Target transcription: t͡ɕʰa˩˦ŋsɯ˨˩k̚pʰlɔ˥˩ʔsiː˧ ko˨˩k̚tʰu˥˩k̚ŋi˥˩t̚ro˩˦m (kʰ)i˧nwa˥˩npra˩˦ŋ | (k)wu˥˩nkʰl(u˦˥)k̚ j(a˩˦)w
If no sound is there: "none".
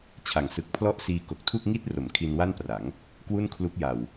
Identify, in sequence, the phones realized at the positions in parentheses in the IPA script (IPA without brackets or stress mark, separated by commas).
kʰ, k, u˦˥, a˨˩